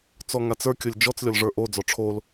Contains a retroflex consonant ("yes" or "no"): yes